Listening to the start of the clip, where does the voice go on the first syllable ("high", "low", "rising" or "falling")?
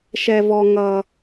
high